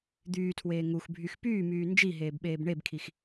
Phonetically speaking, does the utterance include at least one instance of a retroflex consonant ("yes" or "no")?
yes